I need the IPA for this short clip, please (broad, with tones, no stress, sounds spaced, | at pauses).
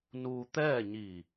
n uː˧ t̪ ɛː˥˨ ɲ iː˧˩